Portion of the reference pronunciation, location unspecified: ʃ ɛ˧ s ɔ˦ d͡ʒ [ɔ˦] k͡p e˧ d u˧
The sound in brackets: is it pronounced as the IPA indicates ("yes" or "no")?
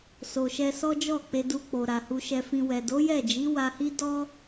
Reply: no